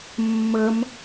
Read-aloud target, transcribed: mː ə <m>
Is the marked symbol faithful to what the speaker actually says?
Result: yes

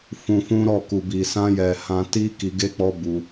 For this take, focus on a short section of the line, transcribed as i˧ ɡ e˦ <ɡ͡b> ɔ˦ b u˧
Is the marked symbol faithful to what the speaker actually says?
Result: no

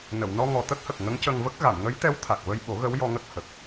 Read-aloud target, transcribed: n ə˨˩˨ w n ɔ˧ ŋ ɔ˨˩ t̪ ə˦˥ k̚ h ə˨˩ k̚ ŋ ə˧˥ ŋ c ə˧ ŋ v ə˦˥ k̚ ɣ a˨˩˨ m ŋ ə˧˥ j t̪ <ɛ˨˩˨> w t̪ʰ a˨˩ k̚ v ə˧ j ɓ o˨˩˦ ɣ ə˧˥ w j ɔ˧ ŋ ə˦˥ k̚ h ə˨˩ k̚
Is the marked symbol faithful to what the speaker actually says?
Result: no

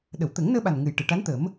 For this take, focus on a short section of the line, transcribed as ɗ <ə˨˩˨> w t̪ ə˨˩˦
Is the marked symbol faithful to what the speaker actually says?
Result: yes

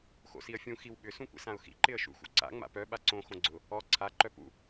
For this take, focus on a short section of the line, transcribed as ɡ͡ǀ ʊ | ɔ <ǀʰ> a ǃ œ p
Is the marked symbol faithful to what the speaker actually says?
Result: yes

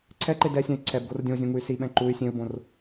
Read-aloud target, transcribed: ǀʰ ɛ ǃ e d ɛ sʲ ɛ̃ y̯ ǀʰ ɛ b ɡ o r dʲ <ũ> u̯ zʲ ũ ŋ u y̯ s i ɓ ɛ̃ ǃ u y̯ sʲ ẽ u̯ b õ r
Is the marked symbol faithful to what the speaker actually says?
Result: no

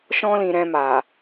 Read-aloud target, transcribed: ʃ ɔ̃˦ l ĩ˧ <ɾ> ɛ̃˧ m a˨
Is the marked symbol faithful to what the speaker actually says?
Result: yes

